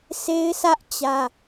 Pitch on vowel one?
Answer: high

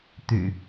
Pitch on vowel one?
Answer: low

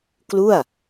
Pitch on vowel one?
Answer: falling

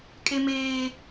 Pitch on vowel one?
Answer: high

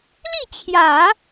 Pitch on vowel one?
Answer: falling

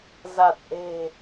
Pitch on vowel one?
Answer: low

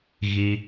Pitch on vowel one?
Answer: high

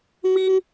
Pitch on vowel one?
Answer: high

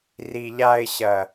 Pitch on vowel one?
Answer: low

